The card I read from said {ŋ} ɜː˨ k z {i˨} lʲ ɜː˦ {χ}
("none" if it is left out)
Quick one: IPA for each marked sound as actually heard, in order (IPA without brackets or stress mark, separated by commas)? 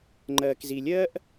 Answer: ŋ͡ǃ, i˨, ʔ